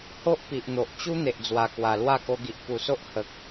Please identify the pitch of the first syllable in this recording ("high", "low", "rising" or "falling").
high